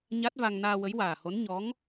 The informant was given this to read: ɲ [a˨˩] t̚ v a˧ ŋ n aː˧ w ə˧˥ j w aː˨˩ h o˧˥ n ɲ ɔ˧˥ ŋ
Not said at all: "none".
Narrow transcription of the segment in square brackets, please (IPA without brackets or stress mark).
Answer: a˦˥